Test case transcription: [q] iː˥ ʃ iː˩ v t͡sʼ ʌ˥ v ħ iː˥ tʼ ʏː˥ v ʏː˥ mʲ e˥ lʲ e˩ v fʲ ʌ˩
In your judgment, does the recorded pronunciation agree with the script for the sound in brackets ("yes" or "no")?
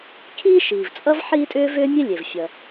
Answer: no